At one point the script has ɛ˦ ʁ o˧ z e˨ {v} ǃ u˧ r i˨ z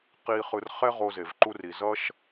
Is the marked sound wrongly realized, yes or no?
no